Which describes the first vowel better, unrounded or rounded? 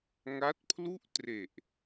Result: unrounded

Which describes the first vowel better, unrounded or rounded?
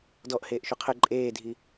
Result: rounded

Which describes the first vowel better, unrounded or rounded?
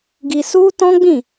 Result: unrounded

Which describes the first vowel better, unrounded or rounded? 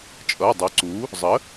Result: unrounded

